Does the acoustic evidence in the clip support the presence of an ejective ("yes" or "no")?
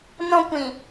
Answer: no